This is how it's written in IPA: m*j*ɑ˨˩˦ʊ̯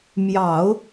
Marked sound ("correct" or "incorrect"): correct